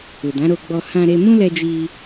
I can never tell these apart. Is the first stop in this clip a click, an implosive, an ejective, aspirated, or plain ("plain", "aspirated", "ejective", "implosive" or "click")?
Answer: plain